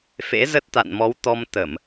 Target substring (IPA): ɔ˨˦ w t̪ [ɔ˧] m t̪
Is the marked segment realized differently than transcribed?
no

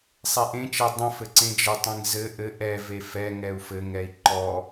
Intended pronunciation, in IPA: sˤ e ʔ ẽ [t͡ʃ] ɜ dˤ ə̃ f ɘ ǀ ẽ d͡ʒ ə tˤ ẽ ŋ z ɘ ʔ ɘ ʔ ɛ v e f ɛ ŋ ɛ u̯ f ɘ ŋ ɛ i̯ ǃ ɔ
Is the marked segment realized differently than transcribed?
no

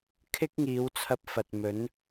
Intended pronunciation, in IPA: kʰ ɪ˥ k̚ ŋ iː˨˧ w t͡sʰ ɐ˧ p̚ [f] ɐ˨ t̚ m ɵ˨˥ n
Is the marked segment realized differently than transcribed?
no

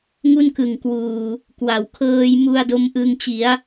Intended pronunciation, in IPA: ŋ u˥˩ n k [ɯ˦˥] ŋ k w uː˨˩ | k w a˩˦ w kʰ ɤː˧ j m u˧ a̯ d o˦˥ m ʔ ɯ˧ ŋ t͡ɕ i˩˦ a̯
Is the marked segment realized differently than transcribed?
yes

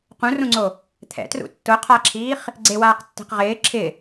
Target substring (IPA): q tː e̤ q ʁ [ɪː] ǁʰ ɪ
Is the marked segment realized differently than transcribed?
no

